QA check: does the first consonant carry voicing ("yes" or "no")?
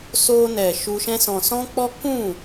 no